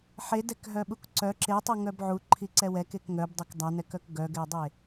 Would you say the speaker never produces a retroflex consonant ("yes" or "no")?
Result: yes